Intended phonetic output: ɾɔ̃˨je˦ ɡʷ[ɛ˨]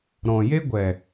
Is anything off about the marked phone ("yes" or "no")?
no